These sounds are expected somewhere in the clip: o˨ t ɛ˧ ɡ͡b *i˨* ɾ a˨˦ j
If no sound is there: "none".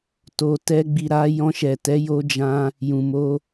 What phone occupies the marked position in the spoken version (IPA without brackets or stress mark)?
i˨